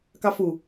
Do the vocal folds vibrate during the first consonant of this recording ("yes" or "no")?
no